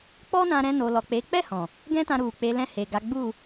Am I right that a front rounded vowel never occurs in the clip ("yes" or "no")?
yes